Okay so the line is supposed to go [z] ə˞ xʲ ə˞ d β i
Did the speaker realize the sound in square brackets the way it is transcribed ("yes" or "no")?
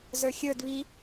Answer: yes